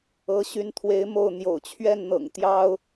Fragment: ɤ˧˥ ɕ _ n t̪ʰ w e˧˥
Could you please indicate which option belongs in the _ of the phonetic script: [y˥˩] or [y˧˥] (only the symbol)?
y˧˥